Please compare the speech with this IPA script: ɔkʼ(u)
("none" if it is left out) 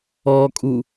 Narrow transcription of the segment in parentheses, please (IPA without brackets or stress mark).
u